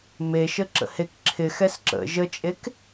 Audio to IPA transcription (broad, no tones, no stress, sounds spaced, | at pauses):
m e ʃ ə ǁ ə̰ h e k ǁʰ ɪ x ɛ s ǁ ə̰ ʒ ə t͡ʃʼ e k